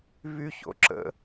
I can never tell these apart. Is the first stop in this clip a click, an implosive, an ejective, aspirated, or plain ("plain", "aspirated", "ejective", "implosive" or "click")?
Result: click